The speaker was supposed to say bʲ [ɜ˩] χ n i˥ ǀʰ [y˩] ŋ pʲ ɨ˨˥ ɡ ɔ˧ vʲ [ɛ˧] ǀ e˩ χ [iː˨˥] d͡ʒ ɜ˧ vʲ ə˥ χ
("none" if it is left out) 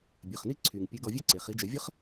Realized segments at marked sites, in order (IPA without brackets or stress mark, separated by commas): ɜ˩˧˩, y˩, ɛ˥, i˨˥